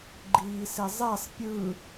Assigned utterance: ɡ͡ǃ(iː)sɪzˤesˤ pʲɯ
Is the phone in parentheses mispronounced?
no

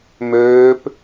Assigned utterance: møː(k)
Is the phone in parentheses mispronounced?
yes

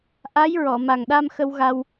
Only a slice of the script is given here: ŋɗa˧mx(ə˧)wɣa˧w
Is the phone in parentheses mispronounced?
no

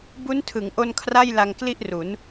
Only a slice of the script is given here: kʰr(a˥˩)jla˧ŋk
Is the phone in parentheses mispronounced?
no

